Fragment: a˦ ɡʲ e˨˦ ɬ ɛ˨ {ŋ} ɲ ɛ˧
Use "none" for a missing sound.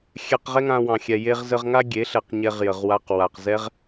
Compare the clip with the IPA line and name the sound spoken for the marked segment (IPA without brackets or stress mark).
q